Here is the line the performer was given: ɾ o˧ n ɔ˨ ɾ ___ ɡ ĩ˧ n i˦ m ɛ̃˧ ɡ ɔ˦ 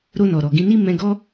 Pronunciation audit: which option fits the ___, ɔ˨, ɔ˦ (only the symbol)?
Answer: ɔ˨